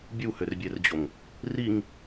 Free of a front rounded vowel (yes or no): no